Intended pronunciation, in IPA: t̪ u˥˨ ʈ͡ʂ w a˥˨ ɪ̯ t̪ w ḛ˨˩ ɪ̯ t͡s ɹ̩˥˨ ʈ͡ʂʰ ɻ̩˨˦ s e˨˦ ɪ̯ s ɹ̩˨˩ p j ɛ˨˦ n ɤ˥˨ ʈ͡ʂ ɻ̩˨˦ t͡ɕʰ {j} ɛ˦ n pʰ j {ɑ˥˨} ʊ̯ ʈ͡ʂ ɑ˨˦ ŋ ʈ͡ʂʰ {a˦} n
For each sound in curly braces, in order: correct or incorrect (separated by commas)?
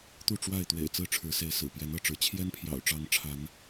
correct, incorrect, incorrect